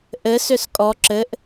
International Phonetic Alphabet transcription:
ʔɘ sʏskʼɔ ǁɘʔ

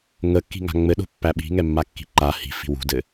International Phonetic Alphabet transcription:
ŋəkːi̤ŋa̤ ŋ͡mɘɗo̤pːæ ɓi̤ŋɛmːakːi̤ ǃa hi̤fi̤ wṳdɘ

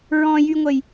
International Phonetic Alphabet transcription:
ɹɔ̃jyŋʷəj

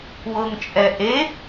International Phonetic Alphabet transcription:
wɤŋt͡ʃʼɛ ʔe

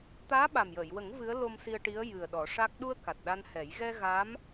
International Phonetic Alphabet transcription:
t̪aː˧˥ɓa˨˩mjəː˨˩˨jwə˨˩˦ŋ vɨ˧˥ə̯lo˧msi˧ə̯ʈi˧˥ə̯ jɨ˨˩ə̯ɗɔ˨˩˦ʂa˦˥k̚ ɗu˧ə̯ ka˨˩t̚ɗa˧nhɛ˨˩˦j ɣɛ˧ ɣa˧˥m

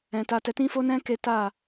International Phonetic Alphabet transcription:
ɛ̃˧ta˦tɛ˦ tĩ˦fo˦nɛ̃˦ ke˦ ta˦˨

